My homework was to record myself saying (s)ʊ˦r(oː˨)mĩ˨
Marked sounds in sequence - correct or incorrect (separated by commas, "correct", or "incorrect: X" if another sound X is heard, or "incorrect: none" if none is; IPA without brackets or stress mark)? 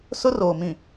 correct, correct